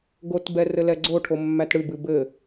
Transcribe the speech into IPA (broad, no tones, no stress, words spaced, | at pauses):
ɡotbɛ rɘlɛɡ͡ǀoʈʰo mːætɽɨbɨ bɘ